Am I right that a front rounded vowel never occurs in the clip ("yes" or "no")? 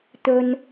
yes